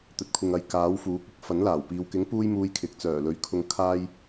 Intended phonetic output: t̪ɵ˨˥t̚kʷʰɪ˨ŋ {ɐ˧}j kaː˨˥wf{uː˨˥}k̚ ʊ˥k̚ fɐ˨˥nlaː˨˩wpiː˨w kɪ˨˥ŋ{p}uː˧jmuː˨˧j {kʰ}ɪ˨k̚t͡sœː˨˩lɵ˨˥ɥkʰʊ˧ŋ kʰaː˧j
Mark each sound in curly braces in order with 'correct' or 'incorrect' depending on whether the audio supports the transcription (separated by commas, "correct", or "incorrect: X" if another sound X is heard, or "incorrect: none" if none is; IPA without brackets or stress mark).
incorrect: ɐ˨˧, correct, correct, correct